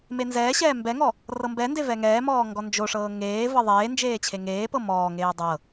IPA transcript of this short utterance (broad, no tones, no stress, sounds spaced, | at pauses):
m e n z ɛː ɕ ɛː m b ɛ ŋ ɔ | r ɤ m b ɛ n d e v ɛ ŋ ɛː m ɔː ŋ ɡ ɔ n d͡ʒ o ʂ ɤː ŋ eː v ɤ ðˤ eː n d͡ʒ eː t͡ɕʰ e ŋ eː p ɤ m ɔː ŋ eː dˤ ɤ